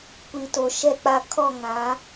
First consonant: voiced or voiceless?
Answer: voiceless